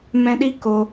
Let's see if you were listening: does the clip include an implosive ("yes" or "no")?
yes